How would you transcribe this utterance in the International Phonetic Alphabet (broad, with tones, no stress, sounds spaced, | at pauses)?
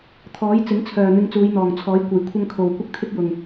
t̪ʰ ɔː˨˥ j t͡s ɪ˨˥ ŋ t͡sʰ œː˨ n̪ ɪ˧ ŋ t͡s uː˨˧ j n̪ ɔː˨˩ ŋ t͡sʰ ɔː˨˥ j kʷ ɐ˨˩ j kʷʰ ɐ˧ ŋ kʰ o˨ w kʷ ɪ˥ k̚ t̪ʰ ɪ˥ k̚ j ʊ˨˩ ŋ